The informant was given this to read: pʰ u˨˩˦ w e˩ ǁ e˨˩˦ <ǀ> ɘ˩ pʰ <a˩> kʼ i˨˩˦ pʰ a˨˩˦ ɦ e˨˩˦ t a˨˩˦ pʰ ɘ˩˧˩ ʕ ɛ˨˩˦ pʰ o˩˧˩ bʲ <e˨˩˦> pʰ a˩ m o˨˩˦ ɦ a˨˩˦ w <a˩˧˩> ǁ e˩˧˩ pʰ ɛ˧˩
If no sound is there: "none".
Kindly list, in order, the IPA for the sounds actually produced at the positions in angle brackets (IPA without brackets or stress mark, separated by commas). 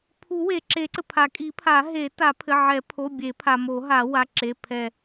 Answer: ǀ, a˩, e˨˩˦, a˩˧˩